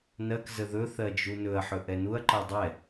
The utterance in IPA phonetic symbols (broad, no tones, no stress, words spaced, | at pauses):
nɜk zəðɵ θɜd͡ʒunɵɐ̯ ħɵʔɛnuɐ̯ ǃɜdˤɛ